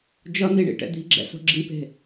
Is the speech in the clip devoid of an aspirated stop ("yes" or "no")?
yes